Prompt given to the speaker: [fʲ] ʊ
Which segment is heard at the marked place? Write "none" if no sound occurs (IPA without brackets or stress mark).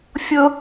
fʲ